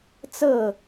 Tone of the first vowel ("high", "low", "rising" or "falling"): falling